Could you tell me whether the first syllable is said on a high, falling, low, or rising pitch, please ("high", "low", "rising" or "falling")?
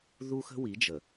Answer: high